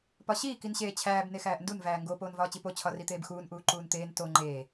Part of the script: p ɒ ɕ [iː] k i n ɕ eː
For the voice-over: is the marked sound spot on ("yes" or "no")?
yes